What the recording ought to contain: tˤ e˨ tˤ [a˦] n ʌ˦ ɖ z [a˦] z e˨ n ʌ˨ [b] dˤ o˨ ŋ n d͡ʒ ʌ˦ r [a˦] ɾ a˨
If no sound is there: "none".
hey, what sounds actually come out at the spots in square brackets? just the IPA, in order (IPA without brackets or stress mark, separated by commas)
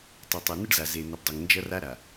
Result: a˨, a˨, b, a˦